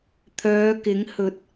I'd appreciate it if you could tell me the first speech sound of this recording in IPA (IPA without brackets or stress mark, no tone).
t̪ʰ